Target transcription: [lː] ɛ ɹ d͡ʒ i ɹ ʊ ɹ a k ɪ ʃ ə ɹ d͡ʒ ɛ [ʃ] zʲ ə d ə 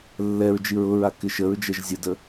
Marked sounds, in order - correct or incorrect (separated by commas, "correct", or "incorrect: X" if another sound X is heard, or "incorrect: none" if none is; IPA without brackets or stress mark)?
correct, incorrect: ʒ